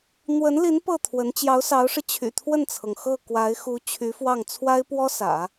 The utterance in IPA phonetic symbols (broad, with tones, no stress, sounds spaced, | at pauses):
n̪ w ə˧˥ n l i˧˥ n p ɤ˥˩ t̪ʰ w ə˧˥ n t͡ɕ j ɑ˧˥ ʊ̯ s ɑ˧˥ ʊ̯ ʂ ɻ̩˧ t͡ɕʰ y̰˨˩ t̪ʰ w ə˥˩ n t͡sʰ ɤ˩ ŋ x ɤ˥˩ k w a˧˥ ɪ̯ x u˧˥ t͡ɕʰ y˧˥ f w ɑ˥˩ ŋ t͡sʰ w a˥ ɪ̯ p w ɔ˥ s ä̰˨˩˦